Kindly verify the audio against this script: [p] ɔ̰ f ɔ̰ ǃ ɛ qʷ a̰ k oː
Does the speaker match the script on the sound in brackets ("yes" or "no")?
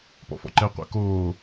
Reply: yes